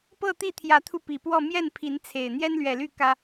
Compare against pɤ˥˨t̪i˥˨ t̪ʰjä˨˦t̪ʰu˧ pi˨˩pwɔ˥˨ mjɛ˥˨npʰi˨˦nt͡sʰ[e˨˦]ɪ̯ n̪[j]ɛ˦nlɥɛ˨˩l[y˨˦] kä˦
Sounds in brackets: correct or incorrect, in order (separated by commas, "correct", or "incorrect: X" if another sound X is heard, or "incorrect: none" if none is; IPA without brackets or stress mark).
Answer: incorrect: e˨˩, correct, incorrect: y˥˨